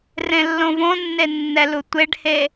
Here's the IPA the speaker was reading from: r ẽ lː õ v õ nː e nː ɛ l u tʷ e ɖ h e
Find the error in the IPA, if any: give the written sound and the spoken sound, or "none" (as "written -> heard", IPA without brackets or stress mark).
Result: none